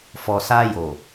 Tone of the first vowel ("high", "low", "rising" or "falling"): low